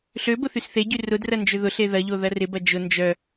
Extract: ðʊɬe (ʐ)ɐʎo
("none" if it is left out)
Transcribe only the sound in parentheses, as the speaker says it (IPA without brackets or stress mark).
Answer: ð